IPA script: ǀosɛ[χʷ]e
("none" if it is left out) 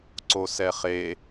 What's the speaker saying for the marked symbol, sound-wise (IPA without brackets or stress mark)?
χ